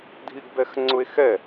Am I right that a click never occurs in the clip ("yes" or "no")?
no